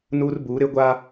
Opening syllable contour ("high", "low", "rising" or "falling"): high